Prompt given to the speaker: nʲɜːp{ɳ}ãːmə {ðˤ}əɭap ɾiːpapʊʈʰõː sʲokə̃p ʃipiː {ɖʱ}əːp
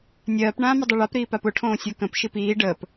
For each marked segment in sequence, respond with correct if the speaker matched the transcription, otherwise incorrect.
correct, incorrect, incorrect

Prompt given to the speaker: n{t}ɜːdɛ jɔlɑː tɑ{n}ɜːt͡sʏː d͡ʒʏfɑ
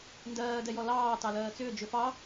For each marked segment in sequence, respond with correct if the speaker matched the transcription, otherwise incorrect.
incorrect, incorrect

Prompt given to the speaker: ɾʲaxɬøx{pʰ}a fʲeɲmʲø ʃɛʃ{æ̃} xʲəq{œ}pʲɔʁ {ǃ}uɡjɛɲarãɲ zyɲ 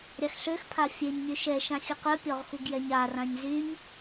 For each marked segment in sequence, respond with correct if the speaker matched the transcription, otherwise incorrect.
correct, incorrect, correct, incorrect

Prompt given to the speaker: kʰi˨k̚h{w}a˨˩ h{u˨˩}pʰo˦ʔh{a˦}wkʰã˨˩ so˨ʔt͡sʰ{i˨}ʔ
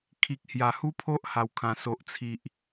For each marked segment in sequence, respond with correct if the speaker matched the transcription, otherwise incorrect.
incorrect, incorrect, incorrect, correct

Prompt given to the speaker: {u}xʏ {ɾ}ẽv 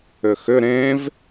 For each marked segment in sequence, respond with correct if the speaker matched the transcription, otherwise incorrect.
incorrect, correct

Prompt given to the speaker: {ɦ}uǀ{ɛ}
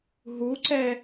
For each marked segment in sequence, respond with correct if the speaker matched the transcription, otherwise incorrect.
correct, correct

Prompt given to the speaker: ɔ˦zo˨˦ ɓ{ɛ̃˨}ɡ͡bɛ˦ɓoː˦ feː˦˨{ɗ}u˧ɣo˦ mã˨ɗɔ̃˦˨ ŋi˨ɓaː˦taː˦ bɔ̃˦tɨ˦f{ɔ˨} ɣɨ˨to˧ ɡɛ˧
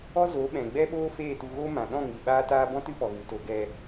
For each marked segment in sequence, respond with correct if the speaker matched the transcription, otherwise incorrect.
correct, incorrect, correct

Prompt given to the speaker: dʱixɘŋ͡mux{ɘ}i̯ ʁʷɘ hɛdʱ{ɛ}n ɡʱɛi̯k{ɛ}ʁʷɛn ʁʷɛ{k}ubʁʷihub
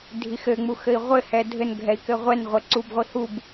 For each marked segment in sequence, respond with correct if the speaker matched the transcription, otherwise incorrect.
correct, incorrect, incorrect, incorrect

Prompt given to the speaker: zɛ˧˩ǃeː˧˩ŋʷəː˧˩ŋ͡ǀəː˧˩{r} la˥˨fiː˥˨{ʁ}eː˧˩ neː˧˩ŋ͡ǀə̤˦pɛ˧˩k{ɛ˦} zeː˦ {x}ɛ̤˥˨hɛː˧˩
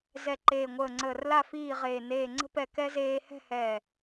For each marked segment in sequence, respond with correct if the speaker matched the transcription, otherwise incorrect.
correct, correct, correct, incorrect

